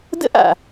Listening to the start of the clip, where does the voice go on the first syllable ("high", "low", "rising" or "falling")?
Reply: high